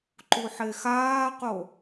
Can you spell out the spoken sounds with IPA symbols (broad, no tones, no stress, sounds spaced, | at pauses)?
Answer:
ǃ u ħ e x aː q o